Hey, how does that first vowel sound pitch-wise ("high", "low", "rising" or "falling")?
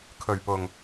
low